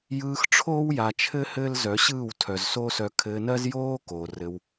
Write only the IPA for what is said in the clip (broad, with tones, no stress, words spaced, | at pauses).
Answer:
jɯː˧xʈ͡ʂʰoː˦wja˨t͡ʃʰɘ˦ hɘː˦lzœ˨˦ ɕɯː˦˨wtʰœ˨zsoː˦sœ˧ kʰɘː˧nɜ˦zjoː˦koː˨ rɘ˧w